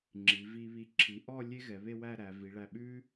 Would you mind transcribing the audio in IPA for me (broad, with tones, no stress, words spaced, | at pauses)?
ŋ͡ǁi˩˧vi˧βi˧˩ ǁʰi˩˧ʔɔ˥˧ lʲe˥ ɣɛ˩˧βe˥˧wæ˥˧ɾæ˩˧ vi˩˧ɭæ˧˩ɓʉ˥